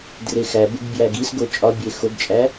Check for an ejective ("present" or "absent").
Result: present